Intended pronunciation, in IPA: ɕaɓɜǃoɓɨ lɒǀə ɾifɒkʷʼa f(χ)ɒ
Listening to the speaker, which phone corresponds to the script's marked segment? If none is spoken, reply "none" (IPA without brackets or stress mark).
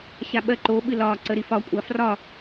r